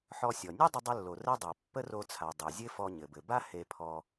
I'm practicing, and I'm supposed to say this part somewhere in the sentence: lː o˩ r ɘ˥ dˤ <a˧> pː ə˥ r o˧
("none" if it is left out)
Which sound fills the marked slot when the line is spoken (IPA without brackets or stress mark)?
a˩